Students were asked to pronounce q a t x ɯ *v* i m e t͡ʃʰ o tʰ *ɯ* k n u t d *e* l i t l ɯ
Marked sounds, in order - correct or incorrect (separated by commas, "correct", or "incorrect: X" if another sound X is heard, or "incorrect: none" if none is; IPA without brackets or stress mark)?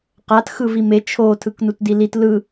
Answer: correct, correct, incorrect: i